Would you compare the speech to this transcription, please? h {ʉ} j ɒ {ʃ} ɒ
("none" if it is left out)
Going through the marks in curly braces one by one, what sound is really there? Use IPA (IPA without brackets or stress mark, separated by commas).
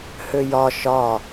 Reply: ø, ʃ